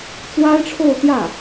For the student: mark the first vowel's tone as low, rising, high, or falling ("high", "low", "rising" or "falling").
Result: high